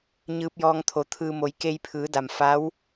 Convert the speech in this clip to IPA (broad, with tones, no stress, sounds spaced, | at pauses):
ɲ ɯː˧ p̚ j ɔː˧ ŋ t̪ʰ o˩˧ t̪ʰ ɯː˧ m o˩˧ j k e˧ j pʰ ɯː˩˧ d a˩ m f a˧˥ w